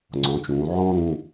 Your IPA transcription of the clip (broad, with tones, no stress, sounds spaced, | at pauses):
ŋ͡ǀ ɔ̃˩˥ t͡ʃ ũː˩˧ ʕ ɔ̃ː˥ ɾ ũ˩˧˩